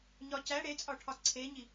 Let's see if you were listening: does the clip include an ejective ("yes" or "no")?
yes